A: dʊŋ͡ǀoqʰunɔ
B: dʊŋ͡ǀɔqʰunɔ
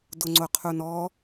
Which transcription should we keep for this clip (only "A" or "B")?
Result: A